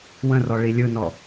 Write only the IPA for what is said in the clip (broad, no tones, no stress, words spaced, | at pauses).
wə̃rɔ ɭilʲɯnɔ